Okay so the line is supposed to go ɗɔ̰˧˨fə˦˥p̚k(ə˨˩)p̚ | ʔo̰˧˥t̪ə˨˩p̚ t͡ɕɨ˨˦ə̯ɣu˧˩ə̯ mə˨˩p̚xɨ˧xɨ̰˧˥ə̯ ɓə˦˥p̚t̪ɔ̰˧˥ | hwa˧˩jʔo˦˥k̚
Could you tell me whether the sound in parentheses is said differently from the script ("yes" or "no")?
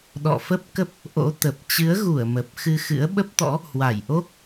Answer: yes